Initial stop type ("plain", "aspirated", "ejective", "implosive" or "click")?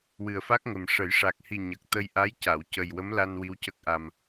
plain